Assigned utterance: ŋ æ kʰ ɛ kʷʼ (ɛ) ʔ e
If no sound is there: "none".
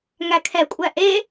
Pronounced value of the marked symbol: æ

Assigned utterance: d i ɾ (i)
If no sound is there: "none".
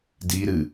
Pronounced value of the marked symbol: ɨ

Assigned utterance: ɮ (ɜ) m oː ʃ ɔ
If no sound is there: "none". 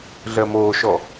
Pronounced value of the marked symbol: ɜ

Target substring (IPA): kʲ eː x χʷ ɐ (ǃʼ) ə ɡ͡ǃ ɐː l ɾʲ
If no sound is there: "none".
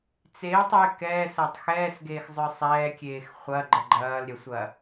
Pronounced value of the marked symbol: ɡ͡ǃ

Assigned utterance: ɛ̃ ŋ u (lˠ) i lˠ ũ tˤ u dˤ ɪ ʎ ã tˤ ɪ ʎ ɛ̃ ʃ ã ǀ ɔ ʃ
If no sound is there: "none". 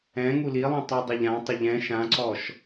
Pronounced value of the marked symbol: l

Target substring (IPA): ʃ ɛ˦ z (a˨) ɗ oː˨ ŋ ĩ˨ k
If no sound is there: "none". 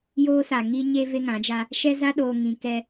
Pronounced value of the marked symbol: a˦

